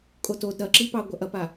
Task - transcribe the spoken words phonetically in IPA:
kʼ o t o d ɾ ɐ ǁ i p ɑ ɡʷ a ʔ ɐ p a

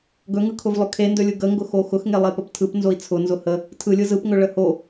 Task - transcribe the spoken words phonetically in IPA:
ɡ ɵ ŋ ɯ kʰ ʊ v lˠ ɵ kʰ e n d ɵ lʲ ɯ ɡ ə ŋ ɡ ʊ x o x ʊ x ŋ e lˠ e p ə p tʰ ɯ p n z o i̯ t͡sʰ ʊ n z ʊ h ə | tʰ ɯ lʲ ɯ z ɯ p ŋ ɵ ɭ ə h o

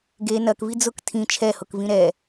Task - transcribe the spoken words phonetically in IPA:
ɡ e n ɐ k v i d͡z ʊ k tʰ ĩ t͡ʃʰ ɛ h ʊ k v ĩ ɾ ɛ

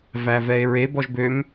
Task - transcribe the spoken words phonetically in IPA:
v æ v ɛ e̯ ɹ e b ɔ ʒ b ø m

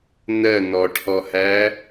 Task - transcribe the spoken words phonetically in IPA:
n ɜ n ɔ ʈʰ ɔ h æ

